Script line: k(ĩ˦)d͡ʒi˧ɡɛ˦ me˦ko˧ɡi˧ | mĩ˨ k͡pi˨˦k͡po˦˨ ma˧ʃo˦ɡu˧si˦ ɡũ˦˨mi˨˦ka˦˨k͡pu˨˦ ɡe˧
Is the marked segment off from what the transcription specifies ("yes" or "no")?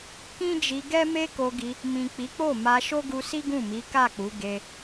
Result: no